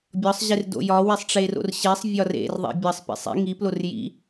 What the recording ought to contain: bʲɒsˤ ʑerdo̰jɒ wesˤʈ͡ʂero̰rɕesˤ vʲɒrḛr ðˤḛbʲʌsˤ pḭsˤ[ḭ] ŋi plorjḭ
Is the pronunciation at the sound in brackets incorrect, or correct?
correct